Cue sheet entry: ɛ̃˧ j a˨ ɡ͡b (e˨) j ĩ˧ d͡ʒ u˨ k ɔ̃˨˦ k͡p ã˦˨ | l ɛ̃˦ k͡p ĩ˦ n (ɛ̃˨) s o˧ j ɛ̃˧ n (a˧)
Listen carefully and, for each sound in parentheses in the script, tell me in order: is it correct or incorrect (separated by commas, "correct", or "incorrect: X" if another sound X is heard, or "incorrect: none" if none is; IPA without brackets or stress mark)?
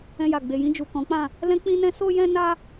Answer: correct, incorrect: ɛ̃˦, correct